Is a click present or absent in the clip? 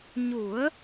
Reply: absent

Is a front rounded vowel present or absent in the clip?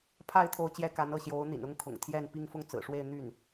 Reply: present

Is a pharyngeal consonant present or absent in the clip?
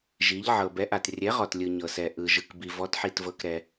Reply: present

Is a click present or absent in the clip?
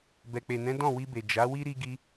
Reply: absent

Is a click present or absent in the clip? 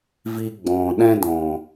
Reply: absent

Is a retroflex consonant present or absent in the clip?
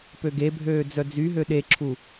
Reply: absent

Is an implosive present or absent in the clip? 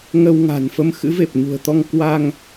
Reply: absent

